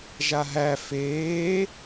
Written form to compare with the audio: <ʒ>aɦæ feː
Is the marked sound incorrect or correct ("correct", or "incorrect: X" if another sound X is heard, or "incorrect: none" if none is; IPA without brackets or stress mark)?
correct